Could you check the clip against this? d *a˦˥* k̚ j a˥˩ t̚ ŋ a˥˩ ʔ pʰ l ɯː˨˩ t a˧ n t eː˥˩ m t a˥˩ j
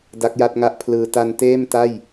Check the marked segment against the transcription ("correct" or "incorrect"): correct